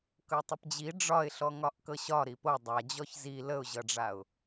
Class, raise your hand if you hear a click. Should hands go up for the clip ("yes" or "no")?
no